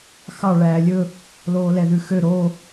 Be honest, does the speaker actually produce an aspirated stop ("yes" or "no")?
no